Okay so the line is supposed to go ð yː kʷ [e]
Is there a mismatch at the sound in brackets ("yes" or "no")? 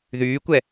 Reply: yes